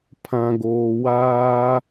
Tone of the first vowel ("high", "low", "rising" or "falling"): low